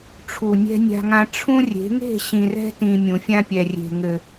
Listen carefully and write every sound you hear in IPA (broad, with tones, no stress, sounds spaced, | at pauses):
ʈ͡ʂʰ u˨ nʲ ɛ̤˦ nʲ a̤˦ ŋ ã˦ ʈ͡ʂʰ ũ˦ rʲ e̤˨˦ ŋ e̤˦˨ ɕ ĩ˨ r ɛ̤˦ t ĩ˨ mʲ ũ˨ fʲ ã˦ pʲ ɛ˨ rʲ e̤˨ ŋ ɘ˨